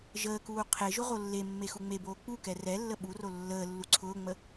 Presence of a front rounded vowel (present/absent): absent